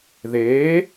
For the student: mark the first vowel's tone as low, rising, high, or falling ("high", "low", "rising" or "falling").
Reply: rising